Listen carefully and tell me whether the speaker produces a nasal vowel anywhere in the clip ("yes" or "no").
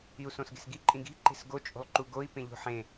yes